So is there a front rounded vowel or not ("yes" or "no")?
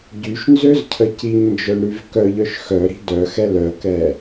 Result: yes